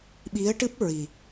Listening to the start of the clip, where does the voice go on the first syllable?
rising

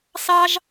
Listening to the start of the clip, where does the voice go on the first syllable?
high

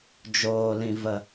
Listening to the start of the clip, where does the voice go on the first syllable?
low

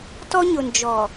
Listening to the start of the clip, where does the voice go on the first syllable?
high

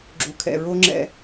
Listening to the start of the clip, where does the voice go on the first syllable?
low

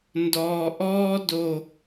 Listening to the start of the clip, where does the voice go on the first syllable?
low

